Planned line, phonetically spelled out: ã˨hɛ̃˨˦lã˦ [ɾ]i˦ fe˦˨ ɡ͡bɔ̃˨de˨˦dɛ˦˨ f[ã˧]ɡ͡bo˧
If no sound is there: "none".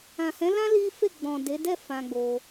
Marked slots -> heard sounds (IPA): l, ã˧

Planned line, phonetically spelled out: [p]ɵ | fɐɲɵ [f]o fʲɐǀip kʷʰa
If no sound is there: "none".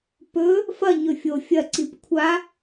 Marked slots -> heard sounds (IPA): p, fʲ

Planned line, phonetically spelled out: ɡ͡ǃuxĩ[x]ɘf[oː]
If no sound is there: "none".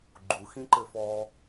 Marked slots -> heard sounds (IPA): ǃ, ɔː

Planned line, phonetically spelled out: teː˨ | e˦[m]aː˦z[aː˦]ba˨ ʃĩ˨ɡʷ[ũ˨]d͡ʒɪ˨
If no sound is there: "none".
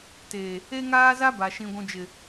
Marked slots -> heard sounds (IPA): ŋ, a˦, ũ˨

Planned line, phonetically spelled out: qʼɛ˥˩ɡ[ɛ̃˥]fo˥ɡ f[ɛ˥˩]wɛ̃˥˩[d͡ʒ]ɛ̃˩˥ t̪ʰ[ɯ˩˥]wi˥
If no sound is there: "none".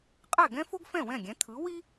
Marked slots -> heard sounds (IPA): ɛ̃˥, ɛ̃˥˩, ɡʲ, ɯ˩˥

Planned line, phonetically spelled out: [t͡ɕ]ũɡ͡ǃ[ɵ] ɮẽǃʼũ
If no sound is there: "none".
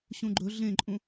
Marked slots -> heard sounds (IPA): ɕ, ɵ

